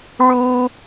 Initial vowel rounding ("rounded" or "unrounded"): rounded